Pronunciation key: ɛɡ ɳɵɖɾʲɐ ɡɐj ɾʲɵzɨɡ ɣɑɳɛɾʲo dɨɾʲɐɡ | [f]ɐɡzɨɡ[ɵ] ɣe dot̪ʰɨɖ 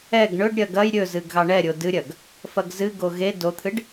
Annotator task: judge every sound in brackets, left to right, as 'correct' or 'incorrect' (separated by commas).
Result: correct, incorrect